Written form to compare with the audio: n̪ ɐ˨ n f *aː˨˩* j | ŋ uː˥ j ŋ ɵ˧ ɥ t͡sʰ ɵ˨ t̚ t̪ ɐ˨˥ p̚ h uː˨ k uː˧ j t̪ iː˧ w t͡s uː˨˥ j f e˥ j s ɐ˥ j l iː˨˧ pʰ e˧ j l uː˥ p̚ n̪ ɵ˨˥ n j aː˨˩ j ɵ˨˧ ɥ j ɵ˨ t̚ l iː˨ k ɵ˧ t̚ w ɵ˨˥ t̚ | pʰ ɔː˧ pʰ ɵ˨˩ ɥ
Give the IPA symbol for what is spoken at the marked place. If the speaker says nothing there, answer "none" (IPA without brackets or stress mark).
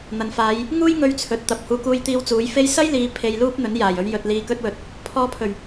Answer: aː˨˧